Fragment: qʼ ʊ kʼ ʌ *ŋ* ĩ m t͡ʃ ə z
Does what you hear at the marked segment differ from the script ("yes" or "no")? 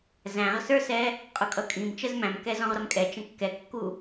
yes